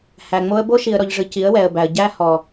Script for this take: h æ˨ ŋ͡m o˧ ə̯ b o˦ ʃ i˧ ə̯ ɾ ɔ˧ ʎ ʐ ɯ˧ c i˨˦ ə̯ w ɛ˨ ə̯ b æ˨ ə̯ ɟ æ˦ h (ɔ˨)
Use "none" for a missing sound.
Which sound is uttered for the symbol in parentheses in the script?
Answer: ɔ˨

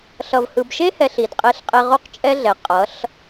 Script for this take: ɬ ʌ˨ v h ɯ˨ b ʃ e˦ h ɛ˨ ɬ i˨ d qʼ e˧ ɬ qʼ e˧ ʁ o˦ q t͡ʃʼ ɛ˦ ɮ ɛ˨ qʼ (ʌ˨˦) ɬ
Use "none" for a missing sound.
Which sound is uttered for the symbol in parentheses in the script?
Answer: ʌ˨˦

